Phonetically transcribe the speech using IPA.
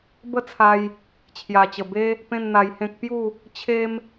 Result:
bə˥˧t͡sʰa˧j | t͡ɕʰja˨˩t͡ɕə˨˩be˦ | pẽ˥˧nn̪a˧jhẽ˦k̚ pju˥˧ | t͡ɕʰe˦m

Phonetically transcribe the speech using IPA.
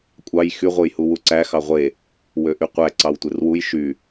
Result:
kʷʼɑj xy ʁʷɯjhuwuǀæ xɑʁʷe | wøʔyqʷæ ǀɑwtʷerwuj ʃy

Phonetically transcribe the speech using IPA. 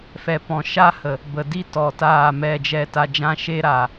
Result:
fɛ˨ pɔ̃˨ʃa˦hə˨ | bə˨di˦tɔ˨ taː˦˨mɛ˦˨d͡ʒɛ˦˨ ta˧d͡ʒã˦ʃe˦ɾaː˨

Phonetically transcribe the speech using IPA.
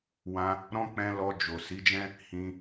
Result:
wã˧ | ɾɔ̃˦ k͡pɛ̃˧ lɔ˧ d͡ʒo˨ si˨˦d͡ʒɛ̃˦ | hĩ˧

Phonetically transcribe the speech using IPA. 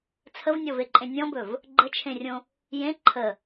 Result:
t͡sʰəvnʲɔveǃʼẽ nʲɔ̃bɵv | ɡ͡ǃət͡ʃʰẽrʲõ | jẽ ǃʰə

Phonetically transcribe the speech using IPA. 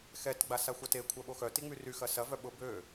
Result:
xɛt ɡ͡basaxʷɐte kʷʰœɓoxœ tiŋ͡myry xɐsɐ vœɓʊ bø

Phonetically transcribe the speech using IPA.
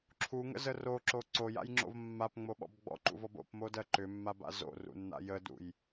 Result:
ǁʰuŋə̰zə roǁo ǀoja̰jŋ͡ǁo̰v mːapŋ͡moɓɔ̰b ɡ͡bɔ̰ǃṵvɔb o̰pmodɜ ǃʏmːaba̰ zo̰rṵnːa̰ jədṵj

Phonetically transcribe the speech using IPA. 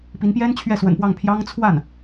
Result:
pi˧˥npjɛ˥n t͡ɕʰɥɛ˥˩swə̰˨˩npwɑ˥˩ŋ pʰjɑ˥ŋ t͡sʰwa˥˩n

